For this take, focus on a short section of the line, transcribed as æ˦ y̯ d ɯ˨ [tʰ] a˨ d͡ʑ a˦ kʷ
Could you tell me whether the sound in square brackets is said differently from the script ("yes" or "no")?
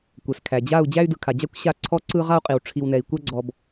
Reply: yes